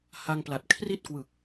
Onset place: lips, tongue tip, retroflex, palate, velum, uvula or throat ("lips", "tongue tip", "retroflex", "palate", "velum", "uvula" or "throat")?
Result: throat